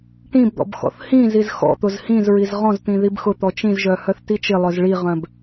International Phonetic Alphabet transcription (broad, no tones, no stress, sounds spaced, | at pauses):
ʈ ĩ b d̪ ɔ̰ b x ɔ̰ θ h ĩ z i z x ɔ̰ t̪ ʊ z h ĩ z ɹ i z ʁ ɔ̃ z t̪ ĩ ð i b x ʊ t̪ ɔ t͡ʃ ĩ z ʒ œ h œ θ t i t͡ʃ ɪ lˠ œ z ɭ i ʁ œ̃ b